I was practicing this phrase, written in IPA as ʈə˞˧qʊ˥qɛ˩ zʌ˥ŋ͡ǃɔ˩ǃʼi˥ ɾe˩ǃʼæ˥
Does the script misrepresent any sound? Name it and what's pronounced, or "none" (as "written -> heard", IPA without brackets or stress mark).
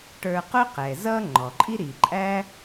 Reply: e˩ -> i˩